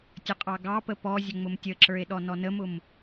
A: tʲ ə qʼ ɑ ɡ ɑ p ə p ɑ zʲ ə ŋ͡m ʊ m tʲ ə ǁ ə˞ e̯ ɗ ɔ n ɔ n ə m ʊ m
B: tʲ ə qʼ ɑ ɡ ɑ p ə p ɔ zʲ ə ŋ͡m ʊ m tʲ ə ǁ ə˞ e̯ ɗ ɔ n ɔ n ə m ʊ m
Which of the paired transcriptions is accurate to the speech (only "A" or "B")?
B